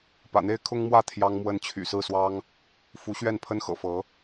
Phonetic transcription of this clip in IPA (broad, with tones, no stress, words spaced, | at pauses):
pä̰˨˩n̪e˦ɪ̯ kʰʊ˦ŋmwä˥˨ t̪ʰjɑ˦ŋmwə˦n t͡ɕʰy̰˨˩sɹ̩˥˨swɑ˦ŋ | fu˨˦ɕɥɛ˥˨npʰə˦nxɤ̰˨˩ fɤ˨˦